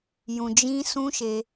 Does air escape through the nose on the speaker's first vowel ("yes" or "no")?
yes